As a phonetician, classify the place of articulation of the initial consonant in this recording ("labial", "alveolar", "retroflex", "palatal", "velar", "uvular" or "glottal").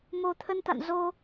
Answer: labial